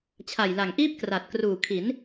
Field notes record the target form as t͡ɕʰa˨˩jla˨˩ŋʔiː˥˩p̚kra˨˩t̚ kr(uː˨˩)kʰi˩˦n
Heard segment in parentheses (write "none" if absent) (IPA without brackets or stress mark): uː˨˩